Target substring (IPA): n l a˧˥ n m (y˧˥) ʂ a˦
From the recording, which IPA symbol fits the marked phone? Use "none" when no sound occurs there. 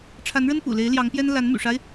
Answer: y̰˨˩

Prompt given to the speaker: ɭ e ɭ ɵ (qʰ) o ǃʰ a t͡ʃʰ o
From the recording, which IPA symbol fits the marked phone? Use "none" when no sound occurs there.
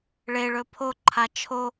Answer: pʰ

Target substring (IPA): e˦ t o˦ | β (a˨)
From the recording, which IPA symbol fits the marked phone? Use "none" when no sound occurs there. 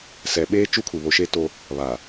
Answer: a˨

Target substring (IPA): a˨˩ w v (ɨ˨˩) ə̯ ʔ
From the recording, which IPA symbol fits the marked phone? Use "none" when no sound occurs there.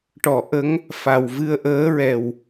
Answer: ɨ˧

